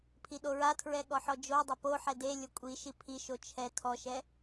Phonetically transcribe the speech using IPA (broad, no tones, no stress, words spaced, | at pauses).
pʰiɗoɹatʰɹɛ ɠɔħɔd͡ʒodˤɐ poħɛ de lʲokʷʼiʃi pʰiʃo t͡ʃʰɛ tʰɔʃɛ